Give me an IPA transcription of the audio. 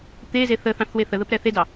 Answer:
t̪ e z e θ ə θ ɑ̃ θ w e θ ə ð ə p ɾ ɛ θ e d ɑ

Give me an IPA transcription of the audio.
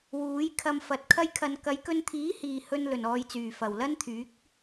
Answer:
w uː˨˥ j kʰ ɐ˧ m f ɐ˨˥ t̚ kʰ ɐ˥ j kʰ ɐ˧ n k ɐ˨˧ j k ɵ˧ n t̪ʰ iː˨˥ h iː˨ h ɵ˧ n l ɵ˨˩ n ɔː˨ j t͡s yː˨˩ f ɐ˨˩ w l ɐ˥ n t̪ʰ yː˨˥ k̚

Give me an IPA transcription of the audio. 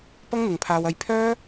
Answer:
p ɐ˥ ŋ n̪ ɪ˨ ŋ pʰ aː˧ w ɐ˧ j pʰ œː˥

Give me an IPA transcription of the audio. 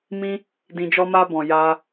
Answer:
m ĩ˦ | d ĩ˧ d͡ʒ ɔ˦ m a˦ b ɔ̃˧ j a˦

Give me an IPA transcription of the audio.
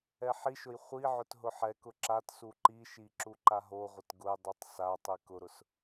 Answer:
ɛ ħ i ʃ ʊ j χʷ i ʕ ʊ t ɦ ʊ ħ ɛ k ʊ ǁ a t s u ǃ i ʃ i ǁ u ǃ a ɦ o ʁʷ ə t ɡ ʊ j dˤ u tˤ s a tˤ i k ʊ ɾ ʊ s

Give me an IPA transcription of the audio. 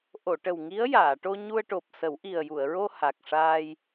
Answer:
ʔ o˨˩˨ ʈ ə˨˩ w ŋ i˧˥ ə̯ j aː˨˩˨ ʈ o˧ ɲ u˧ ə̯ ʈ o˨˩ p̚ s ə˨˩˦ w ʔ i˨˩ ə̯ j u˨˩˨ ə̯ ɹ o˧ h a˨˩ k̚ ʂ aː˧ j

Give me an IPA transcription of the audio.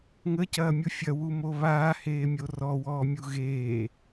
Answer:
ŋ ə c ɐː mʲ u fʲ ɐ w u m o β aː h eː mʲ o r ɔ w ɔː mʲ u ɣ eː

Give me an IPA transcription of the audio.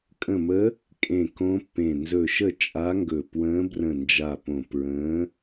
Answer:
kʼ ə̃˧˩ m ə˧˥ | kʼ ẽ˧˩ k õ˧˥ pː ẽ˧˩ n z ɵ˧˩ ʃ ə˥˩ t͡ʃʼ a˧˥ ŋ ɡ ɵ˧˩ p w ə̃ː˧˥ b r ə̃˧˩ n d͡ʒ a˧˩ p õ˧˩ p ɹ ə̃ː˧˥

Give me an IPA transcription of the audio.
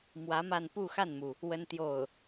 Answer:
m w ä˧˥ m a˥˧ n p u˥˧ x a˥˩ n m u˩ | w ə˥ n t̪ j o˥˩ ʊ̯

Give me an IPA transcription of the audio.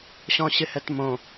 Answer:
ɕ ɔ̃ ɕ ɪ h ɛ t m õ

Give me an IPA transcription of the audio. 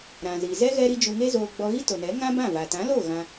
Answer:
ɾ ã˨ z i˨ z ɛ˦ ɣ ɛ˧ ɾ i˧ d͡ʒ u˧ ŋ e˦ z oː˧ ɡ͡b ɔ˧ ɣ i˦ t o˨ n ɛ˨˦ ŋ ã˦ b ã˦˨ v a˨ t ã˨˦ l o˦˨ ɣ ã˧

